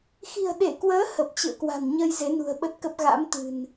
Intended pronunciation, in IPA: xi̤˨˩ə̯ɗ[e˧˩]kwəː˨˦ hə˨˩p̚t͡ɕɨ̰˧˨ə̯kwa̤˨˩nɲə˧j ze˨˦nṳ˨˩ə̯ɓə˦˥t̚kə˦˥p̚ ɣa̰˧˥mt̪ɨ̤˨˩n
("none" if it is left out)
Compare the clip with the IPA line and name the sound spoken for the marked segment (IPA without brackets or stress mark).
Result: e˧˩